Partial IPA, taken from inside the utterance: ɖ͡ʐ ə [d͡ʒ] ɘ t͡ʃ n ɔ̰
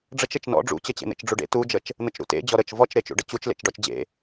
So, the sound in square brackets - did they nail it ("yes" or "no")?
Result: no